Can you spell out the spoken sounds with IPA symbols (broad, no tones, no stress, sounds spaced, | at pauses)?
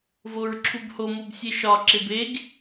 v o ɹ ǁʰ u b h o m o b sʲ e ʃ ɒ ǁ e b e ɡ